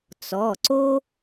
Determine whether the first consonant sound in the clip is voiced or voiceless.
voiceless